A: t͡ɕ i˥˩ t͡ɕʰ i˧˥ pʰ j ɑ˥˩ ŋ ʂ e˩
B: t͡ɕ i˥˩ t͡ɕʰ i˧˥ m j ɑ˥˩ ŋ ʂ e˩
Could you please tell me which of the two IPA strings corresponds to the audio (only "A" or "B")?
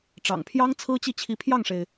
A